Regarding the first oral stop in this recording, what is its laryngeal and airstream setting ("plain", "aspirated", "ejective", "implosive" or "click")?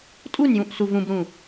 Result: ejective